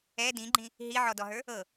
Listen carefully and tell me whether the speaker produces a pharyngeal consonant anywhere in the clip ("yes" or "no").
yes